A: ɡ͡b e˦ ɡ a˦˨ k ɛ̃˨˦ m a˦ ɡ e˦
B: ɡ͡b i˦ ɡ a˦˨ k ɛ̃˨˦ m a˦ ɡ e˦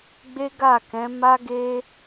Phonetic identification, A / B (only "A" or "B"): A